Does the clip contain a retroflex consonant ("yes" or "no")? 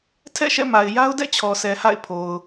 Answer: no